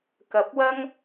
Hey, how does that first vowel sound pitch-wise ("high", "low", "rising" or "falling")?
rising